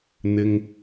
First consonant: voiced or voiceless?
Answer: voiced